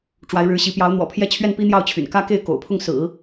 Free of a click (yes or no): yes